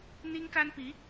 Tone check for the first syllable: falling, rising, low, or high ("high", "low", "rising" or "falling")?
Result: high